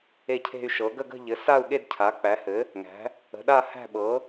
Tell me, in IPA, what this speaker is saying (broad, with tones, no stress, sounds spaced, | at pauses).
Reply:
e˥˧ cʰ e̤˥˧ y̯ ʃ ɤ˩˥ ɡ ə˥˧ ɡ ə̤˥˧ ʎ ɘ˩˥ s a˥˧ u̯ ɠ e˥˧ d cʰ a˩˥ k͡p æ˩˥ h ɘ˩˥ | ŋ æ̤˩˥ | ə̤˩˥ ɗ a˥˧ h æ̤˥˧ ɓ ɤ˩˥